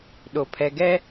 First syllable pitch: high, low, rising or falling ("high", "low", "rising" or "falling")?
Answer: low